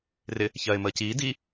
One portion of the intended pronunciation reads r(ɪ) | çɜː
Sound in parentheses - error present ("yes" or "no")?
no